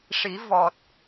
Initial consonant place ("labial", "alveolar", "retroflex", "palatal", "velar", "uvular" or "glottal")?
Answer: retroflex